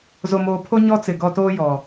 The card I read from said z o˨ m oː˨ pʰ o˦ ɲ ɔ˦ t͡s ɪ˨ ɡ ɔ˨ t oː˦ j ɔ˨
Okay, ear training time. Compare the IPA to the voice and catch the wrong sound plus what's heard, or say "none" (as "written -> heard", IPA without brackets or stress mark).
none